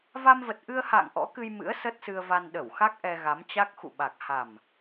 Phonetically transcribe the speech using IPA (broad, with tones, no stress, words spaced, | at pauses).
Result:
va˧mvə˨˩t̚ʔɨ˧ə̯ha̰ː˧˨ŋ ʔɔ̰˧˥kɨ˧j mɨ̰˧˥ə̯ sə˦˥t̚sɨ˧ə̯va˧n ɗə˧˩wxa˦˥k̚ ʔɛ˧ɣa˨˦mt͡ɕa˦˥k̚ xṵ˧˨ɓa˨˩k̚ ha˨˩m